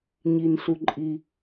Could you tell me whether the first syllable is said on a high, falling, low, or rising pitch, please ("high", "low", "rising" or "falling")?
low